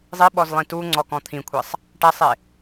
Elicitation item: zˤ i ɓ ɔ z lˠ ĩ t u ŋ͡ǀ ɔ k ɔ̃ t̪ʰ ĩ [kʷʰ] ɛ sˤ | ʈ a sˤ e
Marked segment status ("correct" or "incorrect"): correct